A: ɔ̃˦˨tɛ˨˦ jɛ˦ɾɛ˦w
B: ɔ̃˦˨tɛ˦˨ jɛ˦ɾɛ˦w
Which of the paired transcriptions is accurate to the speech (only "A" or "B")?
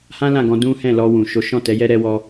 A